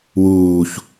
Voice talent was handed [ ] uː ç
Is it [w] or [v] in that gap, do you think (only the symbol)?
w